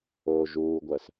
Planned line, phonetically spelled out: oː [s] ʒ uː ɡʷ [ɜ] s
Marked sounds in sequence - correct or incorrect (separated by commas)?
incorrect, correct